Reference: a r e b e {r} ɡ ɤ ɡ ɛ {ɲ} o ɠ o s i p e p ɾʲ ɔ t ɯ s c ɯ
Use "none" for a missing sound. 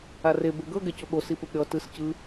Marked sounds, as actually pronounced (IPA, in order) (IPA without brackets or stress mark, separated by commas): none, c